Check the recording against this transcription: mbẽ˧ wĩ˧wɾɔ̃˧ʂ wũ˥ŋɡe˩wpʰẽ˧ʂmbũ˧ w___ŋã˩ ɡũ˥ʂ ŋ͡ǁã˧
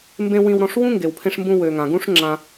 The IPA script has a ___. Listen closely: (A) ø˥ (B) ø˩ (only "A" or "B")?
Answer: B